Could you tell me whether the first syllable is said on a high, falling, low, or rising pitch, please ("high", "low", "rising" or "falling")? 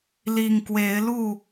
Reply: low